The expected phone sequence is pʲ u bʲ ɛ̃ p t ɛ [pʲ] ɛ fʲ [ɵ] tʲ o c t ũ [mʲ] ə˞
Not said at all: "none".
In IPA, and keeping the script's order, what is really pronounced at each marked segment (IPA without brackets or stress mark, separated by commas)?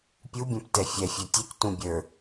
fʲ, œ, bʲ